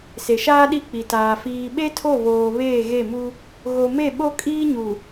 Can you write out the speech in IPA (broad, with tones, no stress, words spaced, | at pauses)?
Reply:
se˨ʃaː˦ ɗi˦k͡pi˨taː˨ fiː˨ɓe˦tʰo˦˨βoː˨ βeː˦˨ɣe˦˨mu˦ | ɣo˨me˦˨ ɓo˦kʼiː˦ɲu˨